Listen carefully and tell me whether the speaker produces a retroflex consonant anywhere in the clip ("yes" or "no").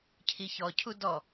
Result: no